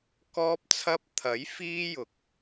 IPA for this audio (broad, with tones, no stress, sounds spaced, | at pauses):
k ɔː˥ p̚ t͡sʰ ɐ˥ p̚ t̪ʰ ɐ˨˥ j f iː˥ j ʊ˨ k̚